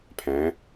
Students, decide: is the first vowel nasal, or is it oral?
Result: nasal